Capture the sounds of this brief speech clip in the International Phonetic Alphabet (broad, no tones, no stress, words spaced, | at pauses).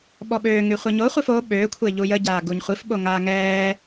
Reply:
ɓɔɓøːŋy χʷɛɲoχʷif o ɓøːkʷʰe ʎujəɟaː ɡuɲχʷifɓo ŋaːŋɛː